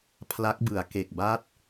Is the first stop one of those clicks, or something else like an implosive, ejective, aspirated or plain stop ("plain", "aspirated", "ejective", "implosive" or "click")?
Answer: aspirated